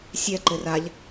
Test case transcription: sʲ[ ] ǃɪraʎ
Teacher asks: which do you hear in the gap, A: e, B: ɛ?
B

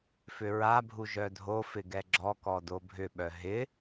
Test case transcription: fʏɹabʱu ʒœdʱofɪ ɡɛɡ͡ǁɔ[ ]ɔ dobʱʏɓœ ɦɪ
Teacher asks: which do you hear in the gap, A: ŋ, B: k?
B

